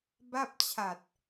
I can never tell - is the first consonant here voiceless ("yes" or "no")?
no